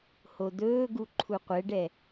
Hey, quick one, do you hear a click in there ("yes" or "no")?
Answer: yes